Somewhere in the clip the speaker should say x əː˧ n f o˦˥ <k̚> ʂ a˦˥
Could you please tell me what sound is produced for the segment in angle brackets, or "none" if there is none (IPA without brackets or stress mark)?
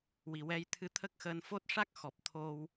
t̚